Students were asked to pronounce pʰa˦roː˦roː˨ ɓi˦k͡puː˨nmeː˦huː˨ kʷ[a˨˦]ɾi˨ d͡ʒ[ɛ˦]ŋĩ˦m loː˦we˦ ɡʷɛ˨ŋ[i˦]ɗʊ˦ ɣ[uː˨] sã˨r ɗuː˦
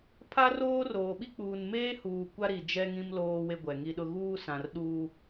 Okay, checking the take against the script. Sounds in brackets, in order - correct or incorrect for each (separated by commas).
incorrect, correct, correct, incorrect